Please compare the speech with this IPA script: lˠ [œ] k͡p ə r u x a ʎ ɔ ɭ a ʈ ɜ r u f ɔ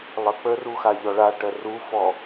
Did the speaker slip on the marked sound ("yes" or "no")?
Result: yes